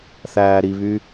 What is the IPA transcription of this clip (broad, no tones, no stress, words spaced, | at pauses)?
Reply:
θæːɾiβy